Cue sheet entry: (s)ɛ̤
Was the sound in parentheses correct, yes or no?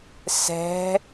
yes